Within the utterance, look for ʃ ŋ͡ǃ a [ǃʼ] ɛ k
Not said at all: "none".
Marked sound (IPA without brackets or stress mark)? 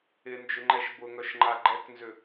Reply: ɡ͡ǃ